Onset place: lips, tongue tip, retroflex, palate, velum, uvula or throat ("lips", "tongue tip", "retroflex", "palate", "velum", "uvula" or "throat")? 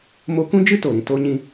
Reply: lips